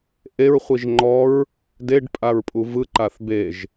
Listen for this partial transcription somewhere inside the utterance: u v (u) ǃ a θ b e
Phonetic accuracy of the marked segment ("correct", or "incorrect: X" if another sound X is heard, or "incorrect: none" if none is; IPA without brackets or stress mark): incorrect: ɯ